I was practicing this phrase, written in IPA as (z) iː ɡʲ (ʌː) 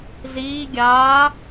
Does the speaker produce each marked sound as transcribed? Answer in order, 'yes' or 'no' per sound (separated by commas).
yes, no